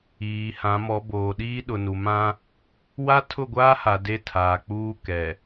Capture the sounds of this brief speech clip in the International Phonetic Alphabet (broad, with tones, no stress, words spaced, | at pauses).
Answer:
iː˨hã˨˦mɔ˨˦ boː˨ɗiː˦ɗʊ˨nu˨ mã˦ | wa˦tʰʊ˦˨ɡʷaː˦ha˨ de˦tʰaː˨ k͡puː˦ kɛ˨